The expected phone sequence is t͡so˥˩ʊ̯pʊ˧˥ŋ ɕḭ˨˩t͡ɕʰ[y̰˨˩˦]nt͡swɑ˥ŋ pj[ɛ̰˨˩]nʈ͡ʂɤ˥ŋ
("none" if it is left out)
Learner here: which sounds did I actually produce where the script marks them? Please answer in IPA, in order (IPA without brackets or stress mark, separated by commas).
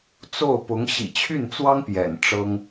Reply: y˥˩, ɛ̰˨˩